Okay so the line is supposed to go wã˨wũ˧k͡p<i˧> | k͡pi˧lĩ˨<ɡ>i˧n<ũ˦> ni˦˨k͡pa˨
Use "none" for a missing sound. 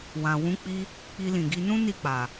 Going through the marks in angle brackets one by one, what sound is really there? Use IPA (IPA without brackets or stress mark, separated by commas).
i˧, ɡ, ũ˦